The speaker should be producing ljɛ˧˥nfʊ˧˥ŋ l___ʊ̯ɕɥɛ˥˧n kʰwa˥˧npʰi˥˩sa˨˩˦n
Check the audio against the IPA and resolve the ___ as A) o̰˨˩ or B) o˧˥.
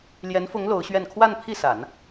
B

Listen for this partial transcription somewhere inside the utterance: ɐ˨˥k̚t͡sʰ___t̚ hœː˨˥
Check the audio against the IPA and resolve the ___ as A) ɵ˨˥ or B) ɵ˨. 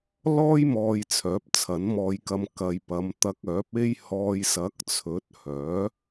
A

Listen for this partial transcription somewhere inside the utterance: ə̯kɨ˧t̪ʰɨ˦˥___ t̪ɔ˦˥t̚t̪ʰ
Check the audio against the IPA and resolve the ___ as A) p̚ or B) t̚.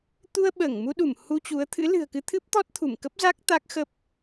A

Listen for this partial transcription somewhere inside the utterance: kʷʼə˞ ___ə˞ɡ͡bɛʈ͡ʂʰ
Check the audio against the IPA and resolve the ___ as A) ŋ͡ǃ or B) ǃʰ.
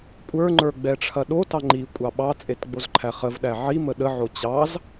A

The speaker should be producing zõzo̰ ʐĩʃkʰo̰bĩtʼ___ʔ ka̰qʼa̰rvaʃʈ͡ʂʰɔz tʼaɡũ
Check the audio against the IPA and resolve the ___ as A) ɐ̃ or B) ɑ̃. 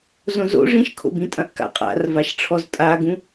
A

